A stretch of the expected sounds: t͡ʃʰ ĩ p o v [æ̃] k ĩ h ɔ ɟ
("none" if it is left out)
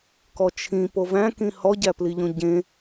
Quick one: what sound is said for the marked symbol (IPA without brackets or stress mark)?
æ̃